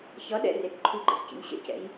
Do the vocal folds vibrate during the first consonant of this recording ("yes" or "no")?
no